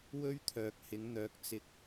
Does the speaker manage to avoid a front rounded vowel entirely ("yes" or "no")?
no